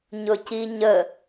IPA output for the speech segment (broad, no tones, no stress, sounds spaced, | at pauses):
ɲ ʊ c i ɲ ə